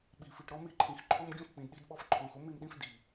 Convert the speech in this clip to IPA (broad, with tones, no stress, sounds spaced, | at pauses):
ɓ i˨ f i˨ ʈ ɾ ɔ˦ m i˦ ǃʰ ĩ˨ x ǃʰ o˦ m ɡʲ õ˦ f k͡p ĩ˨ d ɗ i˦ d ɓ ɔ˦ f ǃʰ õ˨ x o˦ m i˦˨ m ɗ ĩ˦ f d i˨